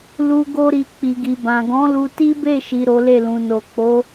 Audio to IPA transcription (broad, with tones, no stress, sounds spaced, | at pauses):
l u˦ ɡ o˦ ɾ i˧ k͡p i˨ ɡ i˨ b ã˨ ɡ ɔ̃˨˦ l u˧ t i˦ b e˦˨ ʃ i˨ ɾ o˨˦ l e˦˨ l ũ˨ n o˨ k͡p o˨˦